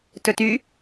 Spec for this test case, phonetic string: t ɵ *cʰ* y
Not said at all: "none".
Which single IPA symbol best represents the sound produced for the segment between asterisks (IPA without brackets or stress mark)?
t